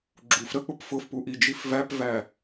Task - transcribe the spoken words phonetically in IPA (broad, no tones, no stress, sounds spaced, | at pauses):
ɡ͡ǁ u f ɾ ə k͡p ʊ p f ʊ f p u ʔ i d͡ʒ i f v æ p v æ